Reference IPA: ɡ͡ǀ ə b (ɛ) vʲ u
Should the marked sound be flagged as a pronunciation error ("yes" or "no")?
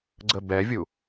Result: no